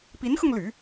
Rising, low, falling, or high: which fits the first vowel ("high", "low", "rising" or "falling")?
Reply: rising